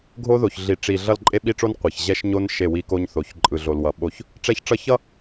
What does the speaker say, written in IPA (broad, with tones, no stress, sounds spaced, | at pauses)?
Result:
ɡʱ o˦ ð o˨ ç ɮ i˨ ʈ͡ʂ i˨ ɮ ʌ˦˨ l ǃʼ e˦ ɓ i˦ ʈ͡ʂ o˦ n qʷ e˨ ç ʑ ɛ˦ ʃ ɲ o˦ n ʃ e˦˨ w i˦ k o˦ ɲ θ o˨˦ ç ǃʼ ɯ˨ ɮ o˨ l w ʌ˨ ɓ o˦˨ ç | ʈ͡ʂ ɛ˦ ç ʈ͡ʂ ʌ˦ ç ʌ˦